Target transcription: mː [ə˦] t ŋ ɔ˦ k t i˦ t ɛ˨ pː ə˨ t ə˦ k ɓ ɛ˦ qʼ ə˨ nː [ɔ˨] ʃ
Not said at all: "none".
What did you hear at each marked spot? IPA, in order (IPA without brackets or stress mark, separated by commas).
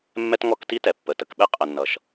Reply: ɛ˦, ʌ˨